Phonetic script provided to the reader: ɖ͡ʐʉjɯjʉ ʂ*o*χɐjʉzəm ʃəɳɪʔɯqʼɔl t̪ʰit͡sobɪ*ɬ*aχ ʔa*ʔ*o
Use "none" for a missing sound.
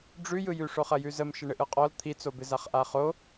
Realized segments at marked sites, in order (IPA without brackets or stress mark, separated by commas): o, z, χ